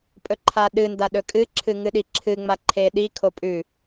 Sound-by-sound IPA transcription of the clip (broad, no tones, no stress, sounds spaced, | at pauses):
pʼ ɵ ǃʰ a ɗ ɨ n d a ɗ ɵ kʼ ɨ ǁʰ ɨ ŋ ɨ ɗ i ǁʰ ɨ ŋ͡m a ǃʰ e ɗ i kʰ o pʼ ʉ